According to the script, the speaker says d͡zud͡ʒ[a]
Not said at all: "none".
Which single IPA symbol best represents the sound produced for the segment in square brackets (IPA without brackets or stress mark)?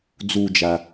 a